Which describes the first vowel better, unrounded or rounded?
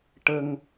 unrounded